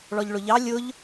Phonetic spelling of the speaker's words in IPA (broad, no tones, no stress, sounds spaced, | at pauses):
ɭ ɔ ʎ ɭ ʊ ʎ ɑ lʲ ʊ ʎ